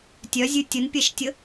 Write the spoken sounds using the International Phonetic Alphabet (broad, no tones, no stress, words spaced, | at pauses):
tʲœzʲʉ tʲənpʲɛʃtʲə